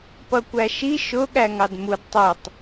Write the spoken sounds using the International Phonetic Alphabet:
pʌkʷæʃi ʃʊ ɠæŋɑdmud tˤitˤ

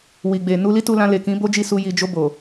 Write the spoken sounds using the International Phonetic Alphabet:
wi˨ɡ͡be˨ nu˧li˦tu˧lã˧ le˨kĩ˨˦ bo˦d͡ʒi˦˨ su˧ ji˨d͡ʒo˧ bo˨

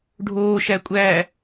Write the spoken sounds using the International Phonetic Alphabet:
ɖʱoː ʃækʷʼæː

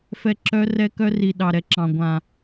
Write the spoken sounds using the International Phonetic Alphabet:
fɛ˨ ǁœ˦rɛ˦ kœ˦ri˨ ɗɑ˨ɾɛ˦ǁɑ̃˨ ɡʷã˨

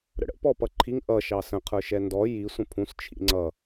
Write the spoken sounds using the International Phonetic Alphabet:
ɾə̰ɽə̰ pɔpʌǃʰiŋ ʔʌ ʃɑsə̃ qʰə˞ʃɛndɔ ji sʷə̃pʰũs t͡ʃʰḭŋ͡ǀʌ

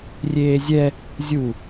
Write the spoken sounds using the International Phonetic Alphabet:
rʲeːzʲɛ | zʲu

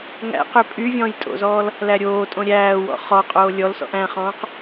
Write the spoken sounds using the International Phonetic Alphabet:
ŋæ̰qø pʼy vʲɔ̃ːjtʼo̰zɔːl | læɾʲoːtʼõ ɾʲæːwɔ̰ χɔqʼoː lʲɔlsɔ̰ʔ æ̃χɔ̃ːq

